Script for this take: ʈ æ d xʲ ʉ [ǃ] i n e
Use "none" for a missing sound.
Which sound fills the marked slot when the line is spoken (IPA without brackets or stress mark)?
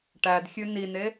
n